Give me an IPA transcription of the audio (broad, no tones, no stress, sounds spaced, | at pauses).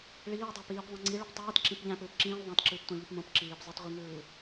ɭ iː dˤ æ p iː p ðˤ ĩ ŋ͡ǀ i ɭ o p tˤ iː t ǁ ĩ p ʎ æ̃ p ɯː p ǁ ĩː lˠ ðˤ æ̃ t ǁ ɯː p tʷ ɑ̃ ʎ y p m õ p ǁ iː p zˤ ɯ t ʁʷ i ŋ ɯː